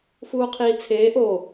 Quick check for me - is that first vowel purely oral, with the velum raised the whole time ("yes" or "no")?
yes